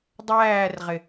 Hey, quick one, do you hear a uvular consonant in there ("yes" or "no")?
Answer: yes